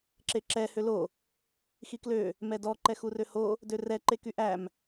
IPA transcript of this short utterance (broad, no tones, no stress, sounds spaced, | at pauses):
ǁ e ǁ ɛ h ø l o | x i k l ø | m ɛ d ɔ ǃ ɛ x u r ø h o | d ø r ɛ ǃ e k y ʔ æ m